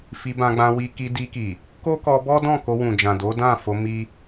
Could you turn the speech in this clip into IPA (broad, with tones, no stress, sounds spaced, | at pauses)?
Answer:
f i˧ b ã˧ ɡ͡b ã˧ w i˧ k i˧ d i˧ k i˨ | k o˦ k ɔ˧ b ɔ˦ d ɔ̃˦˨ k o˧ w ũ˨ d͡ʒ ã˨ d o˨˦ d ã˦˨ f o˧ m i˦